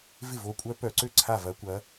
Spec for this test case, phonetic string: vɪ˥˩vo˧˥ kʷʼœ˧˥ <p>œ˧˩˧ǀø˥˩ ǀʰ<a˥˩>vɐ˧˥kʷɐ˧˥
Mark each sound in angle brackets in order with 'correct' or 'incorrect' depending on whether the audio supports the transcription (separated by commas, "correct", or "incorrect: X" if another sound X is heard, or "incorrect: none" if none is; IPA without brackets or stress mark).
correct, correct